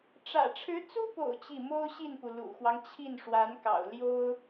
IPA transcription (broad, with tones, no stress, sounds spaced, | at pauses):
ʈ͡ʂ ä̰˨˩ ʈ͡ʂʰ ɻ̩˧˥ t͡s u˥ p o̰˨˩ ʊ̯ t͡ɕ i˥˩ m o˥ ʊ̯ ɕ i˥˩ n p u˩ l ṵ˨˩ x w ɑ˦ ŋ t͡ɕʰ i˥˩ n ʂ w a˧˥ n k ɑ̰˨˩ ʊ̯ l j o˥ ʊ̯